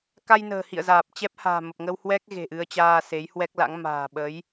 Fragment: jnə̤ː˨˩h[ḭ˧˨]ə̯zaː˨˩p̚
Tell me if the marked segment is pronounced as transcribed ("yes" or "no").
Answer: yes